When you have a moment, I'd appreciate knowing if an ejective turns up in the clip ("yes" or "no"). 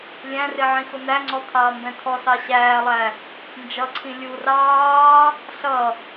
no